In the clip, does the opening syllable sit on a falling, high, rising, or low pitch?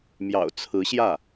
low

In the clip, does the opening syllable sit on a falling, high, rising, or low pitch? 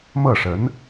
falling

